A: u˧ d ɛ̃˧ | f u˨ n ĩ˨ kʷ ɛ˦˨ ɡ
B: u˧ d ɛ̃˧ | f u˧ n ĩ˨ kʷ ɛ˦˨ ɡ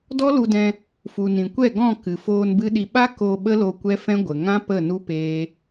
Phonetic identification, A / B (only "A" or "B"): A